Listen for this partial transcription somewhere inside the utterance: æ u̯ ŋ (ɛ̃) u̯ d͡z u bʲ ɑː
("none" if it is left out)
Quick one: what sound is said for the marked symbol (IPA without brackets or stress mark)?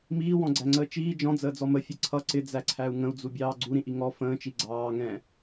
ə̃